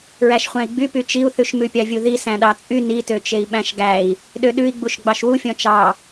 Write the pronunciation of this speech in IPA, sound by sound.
ɹ æ ʃ χʷ æ̃ i̯ ɡ͡b y p y t͡ʃ i u̯ θ ʉ ʃ m ʉ pʲ ɑ vʲ u ð i s æ̃ ɗ ɑ t͡sʼ y n i t ø t͡ʃ e i̯ ɓ æ̃ ʃ ɡ æ i̯ | ɗ ø ɗ ʉ i̯ ɡ͡b u ʃ ɡ͡b ɑ ʃ w u fʲ ɔ̃ t͡ʃ ɑ

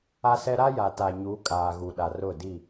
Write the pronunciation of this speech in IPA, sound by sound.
a˦ s ɛ˦ ɾ a˦ j a˨ t a˨ ɲ u˨˦ kʼ aː˨ ɣ u˨ ɗ a˨ r ʊ˦˨ d i˦˨

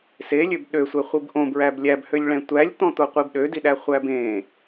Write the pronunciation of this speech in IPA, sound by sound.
s e lʲ ø b ɗ ø sʷ ɛ χʷ i b ʔ õ b ɹ æ b lʲ æ b h ø lʲ ɭ ɛ̃ tʷ æ lʲ t̪ ɔ̃ t̪ o qʷ i b ɗ ø d i ɗ æ χʷ æ b ẽ

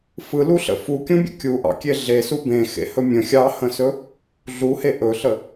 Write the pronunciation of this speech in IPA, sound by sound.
f ɯ l u ɬ ə̰ f u kʲ ũ bʲ ə̰ kʲ u ʔ ɑ̰ kʲ e ɮ e s u b ẽ x ḛ h ɵ mʲ ə̃ xʲ ɑ h ə̃ s ɵ | ɮ u h e ʔ ɵ ɬ ə

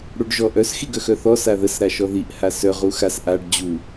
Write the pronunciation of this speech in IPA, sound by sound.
ɽ u ɖ ʒ ɔ ʔ œ s x i ɡ œ x œ θ ɔ s a ð ə s ɾ a ʃ ɔ ð i ʔ h a s œ ʁ u x a s ʔ a ɖ d͡ʑ u

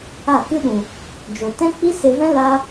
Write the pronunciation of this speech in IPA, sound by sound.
a˦˨ k ɨ˦ ɗ ũ˨ | d͡ʒ o˨ t ɛ̃˦ k͡p i˦ s e˧ v ɛ̃˦ l a˦

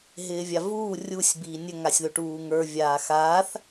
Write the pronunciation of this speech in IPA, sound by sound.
ɦ ɪː vʲ a v uː rʲ u sʲ b iː nʲ ɵ ŋ a sʲ ð ɵ ʈ uː ŋ ə˞ vʲ aː x aː θ

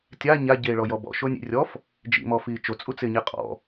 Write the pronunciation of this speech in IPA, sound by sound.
tʲ a ɲ a ɟ eː ɭ ɔ j ɔ b ɔ̰ ʃ o nʲ ḭ rʲ ɔ f | d͡ʒ ḭ m ɔ f iː t͡ʃ o t͡sʼ u t͡s ɪː ɲ ɛ qʼ ɔ̰

